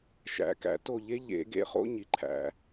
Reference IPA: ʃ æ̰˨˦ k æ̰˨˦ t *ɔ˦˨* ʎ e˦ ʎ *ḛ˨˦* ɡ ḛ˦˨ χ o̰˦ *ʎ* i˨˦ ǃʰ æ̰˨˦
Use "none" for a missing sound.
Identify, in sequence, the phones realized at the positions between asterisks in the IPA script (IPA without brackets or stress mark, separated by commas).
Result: o˦˨, ḛ˨˦, ɲ